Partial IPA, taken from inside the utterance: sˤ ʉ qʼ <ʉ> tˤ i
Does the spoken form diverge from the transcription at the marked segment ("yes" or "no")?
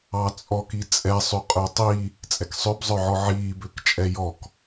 yes